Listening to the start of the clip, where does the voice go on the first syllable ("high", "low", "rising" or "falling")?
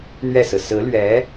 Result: falling